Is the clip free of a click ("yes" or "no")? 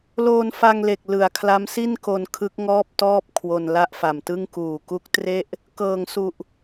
yes